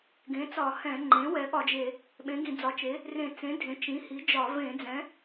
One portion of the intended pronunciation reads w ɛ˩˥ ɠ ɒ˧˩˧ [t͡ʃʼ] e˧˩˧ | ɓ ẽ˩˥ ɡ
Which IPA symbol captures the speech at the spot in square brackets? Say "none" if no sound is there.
d͡ʒ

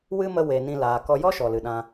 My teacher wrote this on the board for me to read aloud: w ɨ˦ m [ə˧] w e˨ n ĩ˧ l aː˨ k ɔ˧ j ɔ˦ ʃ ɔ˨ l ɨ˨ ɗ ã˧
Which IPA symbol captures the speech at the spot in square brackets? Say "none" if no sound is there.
ə˧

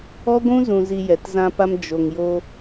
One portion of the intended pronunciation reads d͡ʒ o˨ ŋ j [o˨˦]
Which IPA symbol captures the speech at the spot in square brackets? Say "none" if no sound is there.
o˧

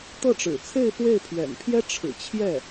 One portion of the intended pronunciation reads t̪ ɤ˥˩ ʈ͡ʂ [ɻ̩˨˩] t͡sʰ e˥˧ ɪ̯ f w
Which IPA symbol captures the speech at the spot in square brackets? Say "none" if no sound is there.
ɻ̩˨˩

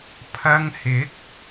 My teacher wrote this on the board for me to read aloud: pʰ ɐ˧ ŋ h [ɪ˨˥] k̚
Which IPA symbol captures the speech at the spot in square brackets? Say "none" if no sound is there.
ɪ˨˥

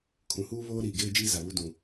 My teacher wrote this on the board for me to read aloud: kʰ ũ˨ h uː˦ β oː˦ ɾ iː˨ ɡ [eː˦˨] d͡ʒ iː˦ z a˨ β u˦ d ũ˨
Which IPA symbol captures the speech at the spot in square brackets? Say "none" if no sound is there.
eː˦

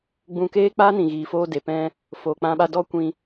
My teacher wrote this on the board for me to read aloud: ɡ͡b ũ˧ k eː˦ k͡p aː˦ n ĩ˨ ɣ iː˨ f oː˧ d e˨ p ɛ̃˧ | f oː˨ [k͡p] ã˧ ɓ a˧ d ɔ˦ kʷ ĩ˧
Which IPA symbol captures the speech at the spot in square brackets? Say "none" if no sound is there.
k͡p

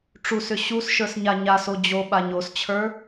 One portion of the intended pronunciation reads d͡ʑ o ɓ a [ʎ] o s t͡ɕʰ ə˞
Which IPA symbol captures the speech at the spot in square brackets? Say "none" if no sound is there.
ɲ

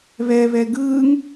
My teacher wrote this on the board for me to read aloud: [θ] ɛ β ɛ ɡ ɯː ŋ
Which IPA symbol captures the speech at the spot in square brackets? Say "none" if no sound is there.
β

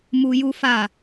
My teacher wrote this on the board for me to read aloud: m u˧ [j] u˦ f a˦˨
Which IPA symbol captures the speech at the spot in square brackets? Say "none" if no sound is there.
j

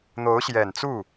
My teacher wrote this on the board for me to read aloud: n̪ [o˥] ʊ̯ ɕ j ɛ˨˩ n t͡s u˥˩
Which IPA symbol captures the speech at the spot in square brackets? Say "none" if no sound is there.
o˧˥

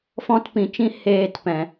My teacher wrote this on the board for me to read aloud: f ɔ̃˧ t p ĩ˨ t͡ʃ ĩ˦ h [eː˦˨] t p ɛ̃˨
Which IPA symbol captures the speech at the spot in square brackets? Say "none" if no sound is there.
eː˧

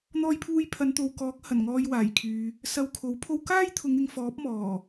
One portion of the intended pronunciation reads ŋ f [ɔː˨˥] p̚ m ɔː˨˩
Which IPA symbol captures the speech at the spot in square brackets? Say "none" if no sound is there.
ɔː˨˥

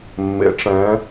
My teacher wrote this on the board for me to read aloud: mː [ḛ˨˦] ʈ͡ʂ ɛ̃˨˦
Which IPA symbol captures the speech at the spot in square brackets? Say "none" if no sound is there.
ḛ˨˦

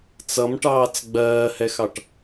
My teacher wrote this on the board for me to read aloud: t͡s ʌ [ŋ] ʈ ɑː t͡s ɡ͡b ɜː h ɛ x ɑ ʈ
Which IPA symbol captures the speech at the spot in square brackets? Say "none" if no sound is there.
m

